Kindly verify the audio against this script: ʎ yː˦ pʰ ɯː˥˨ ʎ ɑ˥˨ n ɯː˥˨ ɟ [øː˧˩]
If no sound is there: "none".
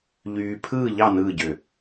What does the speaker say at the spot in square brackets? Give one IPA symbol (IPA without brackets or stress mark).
ø˧˩